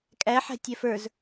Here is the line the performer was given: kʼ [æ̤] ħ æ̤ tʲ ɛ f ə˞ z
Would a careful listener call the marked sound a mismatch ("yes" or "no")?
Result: yes